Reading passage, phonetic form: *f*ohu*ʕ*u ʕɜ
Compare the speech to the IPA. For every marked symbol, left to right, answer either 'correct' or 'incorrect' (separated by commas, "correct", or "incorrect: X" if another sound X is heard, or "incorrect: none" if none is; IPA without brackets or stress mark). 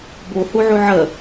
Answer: incorrect: b, correct